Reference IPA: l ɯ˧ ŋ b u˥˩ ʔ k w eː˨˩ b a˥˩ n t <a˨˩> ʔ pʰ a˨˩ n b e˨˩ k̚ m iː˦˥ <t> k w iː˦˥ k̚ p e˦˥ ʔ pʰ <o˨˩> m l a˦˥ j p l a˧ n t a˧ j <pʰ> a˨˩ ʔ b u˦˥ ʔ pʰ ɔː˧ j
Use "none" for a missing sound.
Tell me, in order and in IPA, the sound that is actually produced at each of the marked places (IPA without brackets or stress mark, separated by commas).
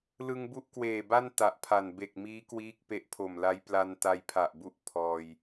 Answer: a˨˩, none, o˨˩, pʰ